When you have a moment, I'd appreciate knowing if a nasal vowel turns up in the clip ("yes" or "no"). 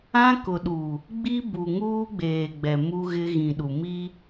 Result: yes